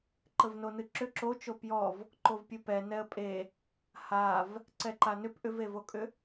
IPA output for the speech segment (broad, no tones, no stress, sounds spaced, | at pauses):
ǃ ə v n o n ɨ ǁ ʏ ǁ o t͡ʃ o p j ɔ v | ǃ o v pʲ ɨ p ɛ n ɛ ə̯ pʼ e | h a v | ǀ ɛ ǃ a n ʏ p ʔ ʏ v e v o kʼ ʏ